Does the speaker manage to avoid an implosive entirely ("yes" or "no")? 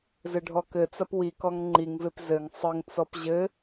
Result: yes